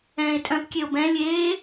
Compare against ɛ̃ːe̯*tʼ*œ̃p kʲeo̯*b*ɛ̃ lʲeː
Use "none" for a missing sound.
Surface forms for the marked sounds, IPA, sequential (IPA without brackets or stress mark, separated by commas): tʼ, b